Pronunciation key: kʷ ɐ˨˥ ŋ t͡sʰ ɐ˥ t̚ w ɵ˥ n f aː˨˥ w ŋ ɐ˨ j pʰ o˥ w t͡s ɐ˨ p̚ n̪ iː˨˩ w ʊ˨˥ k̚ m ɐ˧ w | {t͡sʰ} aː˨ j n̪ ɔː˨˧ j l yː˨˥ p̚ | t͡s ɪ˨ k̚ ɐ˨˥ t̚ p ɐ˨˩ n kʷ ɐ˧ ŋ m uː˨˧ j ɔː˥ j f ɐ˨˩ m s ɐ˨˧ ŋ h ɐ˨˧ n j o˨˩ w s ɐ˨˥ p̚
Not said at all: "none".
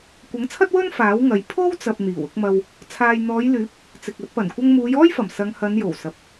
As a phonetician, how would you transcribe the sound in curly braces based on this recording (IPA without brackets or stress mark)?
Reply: t͡sʰ